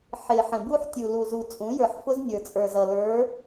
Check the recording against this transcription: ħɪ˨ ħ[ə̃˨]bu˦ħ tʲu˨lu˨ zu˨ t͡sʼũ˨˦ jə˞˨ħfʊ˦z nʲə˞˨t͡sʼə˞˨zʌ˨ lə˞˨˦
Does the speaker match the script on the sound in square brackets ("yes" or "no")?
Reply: yes